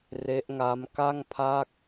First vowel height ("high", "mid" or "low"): mid